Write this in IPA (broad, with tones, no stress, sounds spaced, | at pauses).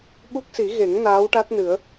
ɓ u˦˥ k̚ s i˨˩˦ ɣ e˨˩˦ ŋ n aː˧˥ w ʈ a˦˥ t̚ n ɨ˨˩˦ ə̯